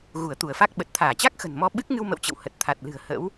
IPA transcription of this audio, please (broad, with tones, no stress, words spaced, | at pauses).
ɣu˧˩ə̯t̪u˧˩ə̯fa˦˥k̚ ɓə˨˩t̚t̪ʰaː˧˩t͡ɕa˦˥k̚ xə̤˨˩nmɔ˧ ɓɨ˦˥k̚ŋɨ˧w mə̰˧˨wt͡ɕə̰˧˨w hə˨˩t̚ t̪ʰa˨˩t̚lɨ̤˨˩ə̯ hə̰˧˥w